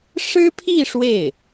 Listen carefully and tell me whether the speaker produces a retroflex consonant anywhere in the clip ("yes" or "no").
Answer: yes